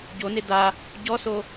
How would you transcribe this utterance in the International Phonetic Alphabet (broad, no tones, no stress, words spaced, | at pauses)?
ɟone d̪a | ɟɔso